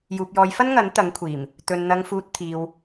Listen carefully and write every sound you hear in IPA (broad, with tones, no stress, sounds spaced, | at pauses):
j uː˨ p̚ j ɔː˨˧ j f ɐ˥ n ŋ ɐ˨˥ n t̪ ɐ˨˥ ŋ kʷʰ iː˨˩ m | t̪ ɵ˨ n n̪ ɐ˨ ŋ f uː˨ t̚ t̪ʰ iː˨ w